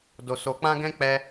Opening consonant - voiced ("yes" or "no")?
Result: yes